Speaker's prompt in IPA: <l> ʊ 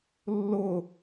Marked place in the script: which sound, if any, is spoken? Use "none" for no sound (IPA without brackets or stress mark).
lː